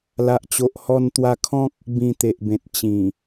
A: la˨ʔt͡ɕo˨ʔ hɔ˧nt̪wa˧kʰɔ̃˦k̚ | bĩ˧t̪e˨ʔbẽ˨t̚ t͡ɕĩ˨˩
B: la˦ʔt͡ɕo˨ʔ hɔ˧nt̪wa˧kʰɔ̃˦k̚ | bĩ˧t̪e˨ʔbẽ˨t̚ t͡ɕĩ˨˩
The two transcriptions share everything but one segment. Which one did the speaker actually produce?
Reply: A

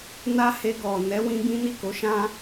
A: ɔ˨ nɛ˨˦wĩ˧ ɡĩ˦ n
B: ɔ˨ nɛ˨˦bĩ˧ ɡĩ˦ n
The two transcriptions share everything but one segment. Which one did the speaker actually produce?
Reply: A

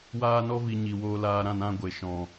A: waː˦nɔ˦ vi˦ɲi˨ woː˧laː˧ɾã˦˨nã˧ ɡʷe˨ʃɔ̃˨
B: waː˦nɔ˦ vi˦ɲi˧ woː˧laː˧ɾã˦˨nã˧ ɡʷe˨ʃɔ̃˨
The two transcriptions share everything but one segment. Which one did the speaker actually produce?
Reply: B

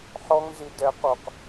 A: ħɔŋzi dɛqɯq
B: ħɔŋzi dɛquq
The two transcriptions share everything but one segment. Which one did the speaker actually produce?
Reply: B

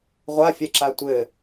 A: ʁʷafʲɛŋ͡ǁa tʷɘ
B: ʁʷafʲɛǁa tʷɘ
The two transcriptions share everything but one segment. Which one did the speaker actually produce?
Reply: B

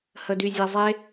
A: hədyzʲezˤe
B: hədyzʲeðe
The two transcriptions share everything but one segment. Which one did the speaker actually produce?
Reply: A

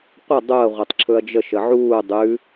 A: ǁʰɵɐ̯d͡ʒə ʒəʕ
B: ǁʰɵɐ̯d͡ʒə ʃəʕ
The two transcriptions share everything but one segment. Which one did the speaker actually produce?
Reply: B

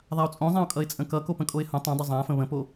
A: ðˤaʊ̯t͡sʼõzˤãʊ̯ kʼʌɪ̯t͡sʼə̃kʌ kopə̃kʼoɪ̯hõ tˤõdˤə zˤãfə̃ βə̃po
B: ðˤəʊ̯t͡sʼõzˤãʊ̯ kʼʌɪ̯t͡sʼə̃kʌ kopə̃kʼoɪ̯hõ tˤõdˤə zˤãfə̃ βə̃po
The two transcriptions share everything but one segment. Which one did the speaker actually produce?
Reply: A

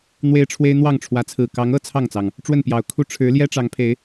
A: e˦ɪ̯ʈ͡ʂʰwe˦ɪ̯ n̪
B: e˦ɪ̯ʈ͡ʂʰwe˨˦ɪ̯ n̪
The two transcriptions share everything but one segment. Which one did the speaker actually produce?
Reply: A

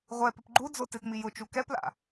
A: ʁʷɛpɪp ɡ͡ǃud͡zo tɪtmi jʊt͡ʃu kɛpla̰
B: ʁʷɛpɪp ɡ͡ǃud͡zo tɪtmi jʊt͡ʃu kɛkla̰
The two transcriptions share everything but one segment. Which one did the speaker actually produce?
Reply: A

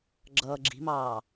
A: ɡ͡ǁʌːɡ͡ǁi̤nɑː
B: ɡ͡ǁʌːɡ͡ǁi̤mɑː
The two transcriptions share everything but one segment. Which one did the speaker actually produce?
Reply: B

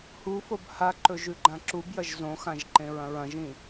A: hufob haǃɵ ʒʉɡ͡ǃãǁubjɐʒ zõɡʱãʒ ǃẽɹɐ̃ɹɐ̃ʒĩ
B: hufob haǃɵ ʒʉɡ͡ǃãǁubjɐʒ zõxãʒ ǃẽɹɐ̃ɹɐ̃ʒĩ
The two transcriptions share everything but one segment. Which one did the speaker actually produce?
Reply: B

